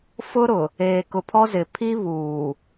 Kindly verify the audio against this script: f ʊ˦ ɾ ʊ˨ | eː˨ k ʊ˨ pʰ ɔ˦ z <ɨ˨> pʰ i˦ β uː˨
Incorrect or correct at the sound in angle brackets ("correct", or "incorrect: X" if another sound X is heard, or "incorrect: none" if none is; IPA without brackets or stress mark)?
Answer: incorrect: ɪ˨